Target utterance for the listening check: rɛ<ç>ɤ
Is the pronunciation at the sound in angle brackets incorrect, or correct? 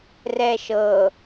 incorrect